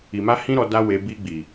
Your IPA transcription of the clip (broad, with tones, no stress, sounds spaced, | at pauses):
i˨ m a˧ h ĩ˦ ɾ ɔ˧ d a˦ w e˧ b i˧ ɡ͡b i˨